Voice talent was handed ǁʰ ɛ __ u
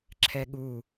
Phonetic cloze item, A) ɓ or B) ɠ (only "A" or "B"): B